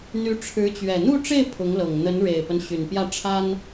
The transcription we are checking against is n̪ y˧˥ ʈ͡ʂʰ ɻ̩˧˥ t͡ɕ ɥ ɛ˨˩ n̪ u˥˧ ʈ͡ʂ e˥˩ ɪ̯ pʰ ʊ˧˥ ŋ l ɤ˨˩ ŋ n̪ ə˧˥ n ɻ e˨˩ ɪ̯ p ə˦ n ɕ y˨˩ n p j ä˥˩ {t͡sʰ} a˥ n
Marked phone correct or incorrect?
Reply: incorrect